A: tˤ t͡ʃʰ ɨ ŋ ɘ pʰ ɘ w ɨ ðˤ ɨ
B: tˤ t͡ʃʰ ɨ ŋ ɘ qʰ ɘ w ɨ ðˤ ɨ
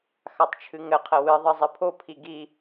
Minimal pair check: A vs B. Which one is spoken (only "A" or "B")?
B